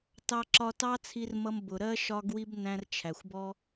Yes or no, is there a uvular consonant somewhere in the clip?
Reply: no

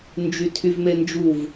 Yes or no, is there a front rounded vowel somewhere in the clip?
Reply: yes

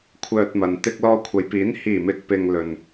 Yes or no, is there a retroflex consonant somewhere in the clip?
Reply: no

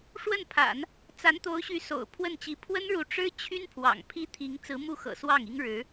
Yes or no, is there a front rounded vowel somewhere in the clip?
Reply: yes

